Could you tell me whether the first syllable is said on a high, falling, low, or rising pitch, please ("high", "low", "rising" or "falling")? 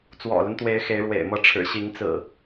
low